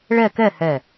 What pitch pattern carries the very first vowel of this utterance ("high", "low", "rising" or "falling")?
falling